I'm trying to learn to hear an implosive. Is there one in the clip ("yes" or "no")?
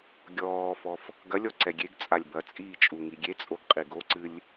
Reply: no